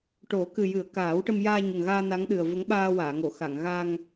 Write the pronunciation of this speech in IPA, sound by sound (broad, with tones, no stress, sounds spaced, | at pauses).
ʈ o˨˩˦ k ɨ˨˩ j ɨ˨˩˦ ə̯ k aː˨˩˦ w ʈ ə˧ m j aː˧ ɲ ə˨˩ ŋ ɣ aː˧ n a˧˥ ŋ ɗ ɨ˨˩ ə̯ v ə˧˥ ŋ ɓ aː˧ w aː˨˩˨ ŋ o˨˩˨ x a˨˩˨ ŋ ɣ a˧ ŋ